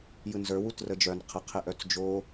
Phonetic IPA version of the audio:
j ɯ n z ə˞ w u t r ə d͡ʒ œ n qʰ ə qʰ e ʔ œ t͡s d͡ʒ o

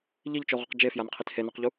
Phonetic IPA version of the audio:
ʎ i ʎ t͡ʃ o ʁ ʊ q d͡ʒ e f j a n qʰ i t h e n o q ʎ u

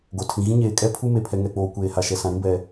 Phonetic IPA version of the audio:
ɡ o˨ tʰ ĩ˨ ɣ ĩ˦ ɲ eː˨ kʼ ɛ˦ pʰ u˦ m e˨ pʰ ɛ˨ ŋ ɛ˨ k͡p oː˨ kʷ eː˨ h a˨ ʃ ɛ˨ s ã˨ ɾ ĩ˦ b ɛ˨

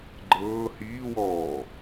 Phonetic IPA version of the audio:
ɡ͡ǃ ɤː h iː w ɔː

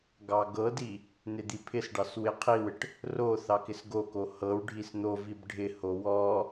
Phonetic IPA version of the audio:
ɡ ɑ ɡ ɤ d i | n ɪ d̪ i pʰ ɪ s ɖ ɑ s w ɪ qʰ i w ɪ ʈ | r o θ ɑ k ɪ s ɡ o k o h ɤ w ɖʱ i s n̪ o v i b ɖʱ ɪ h o w ɔ

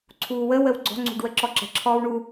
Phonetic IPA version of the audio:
ǀʰ uː w ə w ə w ɡ͡ǀ ɔ̤ ŋ͡ǀ ṳ ɖ w ə ǁ ɔ ǁ ə̤ ǁʰ ɔː w ɳ u

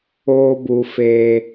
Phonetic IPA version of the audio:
oː˦ b u˧ f eː˧

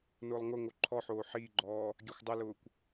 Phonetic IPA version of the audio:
n ʊː lˠ ŋ ʊ ŋ o ǃʰ ɔ ħ oː ħ iː ɡ͡ǃ ɔː | ɡʲ ɛ xʷ dˤ ɪ l ʊː kʷ

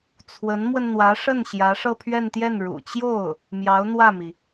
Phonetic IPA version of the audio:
t͡sʰ w ə˧˥ n m w ə˧ n n̪ w ä˧˥ ʂ ə˥˩ n ɕ j ä˧˥ ʂ ɤ˥˧ pʰ ɥ ɛ˥˧ n t̪ j ɛ˥˩ n ɻ ṵ˨˩ t͡ɕ j o˥˩ ʊ̯ | m j ɑ˧˥ ʊ̯ n̪ w ä˥˩ m i˩

